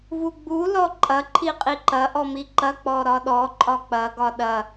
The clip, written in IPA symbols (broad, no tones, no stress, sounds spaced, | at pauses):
v u ɡ͡b u l ɔ ǃʼ ɐ ǃʰ i qʼ i ǃ ɐ ʔ ɔ m i ǃ ɐ k͡p ɔ ɾ ɒ ɗ ɔ ǃʼ ɒ k͡p ɐ ɡ ɒ ɗ ɐ